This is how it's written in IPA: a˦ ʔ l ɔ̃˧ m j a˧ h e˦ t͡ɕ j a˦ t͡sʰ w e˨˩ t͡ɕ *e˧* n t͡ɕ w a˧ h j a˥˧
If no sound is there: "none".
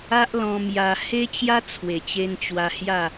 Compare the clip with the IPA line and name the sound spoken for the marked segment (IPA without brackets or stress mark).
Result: e˧